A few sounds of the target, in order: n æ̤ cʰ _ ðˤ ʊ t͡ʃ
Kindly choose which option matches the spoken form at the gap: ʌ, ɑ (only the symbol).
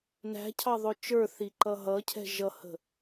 ɑ